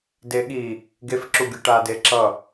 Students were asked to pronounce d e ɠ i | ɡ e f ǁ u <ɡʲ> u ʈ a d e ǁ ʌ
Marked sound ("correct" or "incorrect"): correct